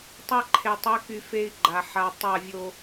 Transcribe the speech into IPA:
tˤa˦ǃʰe˨ tˤy˨˦ky˨ fe˦i̯ɡ͡ǃa˨ ħa˨ tˤa˦˨vʲo˦

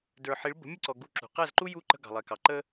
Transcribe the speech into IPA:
də˞˨ħi˨˦ɭ bə̤˨˦mʲə˦˨ǀɔ˨ ɡu˧ǁṳ˨ qæ˦˨zǃu˦ju˦˨ǃə̤˧ ɡɑ̤˨lˠɛ˨kɑ˨ ǃə˦

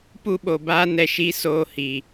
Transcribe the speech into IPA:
pu˦ɓo˨baː˦ nɛ˨ʃi˨˦soː˨ hi˨

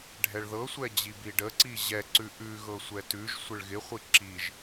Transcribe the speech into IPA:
ɖʱɛɭðɤsʷɛd͡ʑib iɖəǀi ʑɛǀʉ ʔʉɣɤ sʷɛtʉʒ sʷɪɭɣɪχʷi ǁiʒ

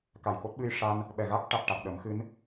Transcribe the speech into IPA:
ka˨˩jko˦˥t̚ ɓɨ˧jʂa˧n | ɓɛ˨˩ɣa˦˥k̚ʈa˨˩t̚ʈa˨˩k̚ ɗə˨˩˦mxɨ˧˥n

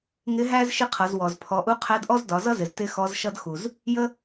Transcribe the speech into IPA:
ŋɪ˧˥ɦæ˥z ʃɪ˥qʰʌ˩˧zwɔ˩z pʰɔ˩˧ʔu˧˥qʰæ˧˥dʔɔ˥z dɒ˩˧zʌ˥zɪ˩z tɪ˥xɔ˧˥zʃʌ˥d xu˩z | jə˥

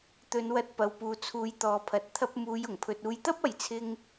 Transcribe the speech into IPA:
t̪ɵ˨˧nwɐ˧t̚ pɐ˨wpuː˨t͡sʰuː˨˧j t̪ɔː˨pʰɐ˨˥t̚ t̪ʰɐ˧p̚muː˨˧j ʊ˨˩ŋpʰɵ˨t̚uː˨˧jt̪ɐ˥p̚ ɐ˧jt͡sʰɪ˥ŋ

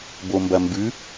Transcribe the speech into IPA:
bombɐmbʉ

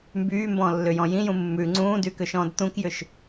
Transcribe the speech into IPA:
mbyːmbɔ̃ːlːʏjɔ̃ jĩjũ mːʉ ŋ͡ǀũːdykʏʃɔ̃ːd t̪ũkjʏʃ

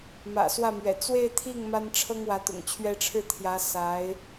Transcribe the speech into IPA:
mä̰˨˩swä˥˩mɥɛ̰˨˩ t͡swe˥˧ɪ̯t̪ʰi˥˩ŋ ma˥n ʈ͡ʂʰɤ˥ŋ wä˧˥t̪ʊ̰˨˩ŋt͡ɕʰɥɛ˥ ʈ͡ʂʰɻ̩˥˩t̪ʰjä˧˥ sa˧˥ɪ̯

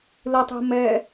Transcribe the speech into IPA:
lɯ tˤe̤ mɛ

